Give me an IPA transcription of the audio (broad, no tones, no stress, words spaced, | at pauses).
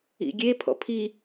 ḭɡʲe pʰɔ̰pʰi